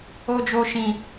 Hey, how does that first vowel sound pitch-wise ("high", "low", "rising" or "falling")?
high